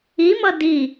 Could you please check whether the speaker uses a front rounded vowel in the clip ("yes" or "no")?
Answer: no